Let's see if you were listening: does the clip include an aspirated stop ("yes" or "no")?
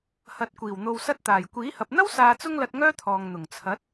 yes